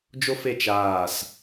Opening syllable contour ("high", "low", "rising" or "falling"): high